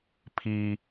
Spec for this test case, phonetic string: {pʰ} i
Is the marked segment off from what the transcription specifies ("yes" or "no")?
no